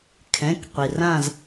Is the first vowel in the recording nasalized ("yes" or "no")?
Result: yes